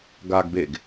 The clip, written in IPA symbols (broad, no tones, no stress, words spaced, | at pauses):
ɡaɡbeɡ